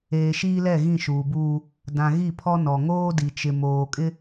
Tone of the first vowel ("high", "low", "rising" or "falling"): low